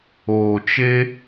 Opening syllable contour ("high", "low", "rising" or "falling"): low